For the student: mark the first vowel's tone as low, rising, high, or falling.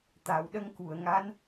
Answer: low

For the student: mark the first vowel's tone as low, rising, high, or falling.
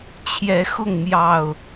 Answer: rising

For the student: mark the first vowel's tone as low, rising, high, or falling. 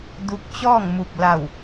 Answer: rising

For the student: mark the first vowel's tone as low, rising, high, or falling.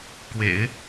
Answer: low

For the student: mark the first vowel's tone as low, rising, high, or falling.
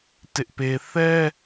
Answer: high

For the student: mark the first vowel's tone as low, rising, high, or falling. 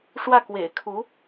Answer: falling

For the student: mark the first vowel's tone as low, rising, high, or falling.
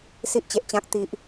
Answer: high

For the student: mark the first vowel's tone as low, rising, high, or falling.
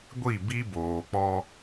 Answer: falling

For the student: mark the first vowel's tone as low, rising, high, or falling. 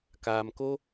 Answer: low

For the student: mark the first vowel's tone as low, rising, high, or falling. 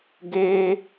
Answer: high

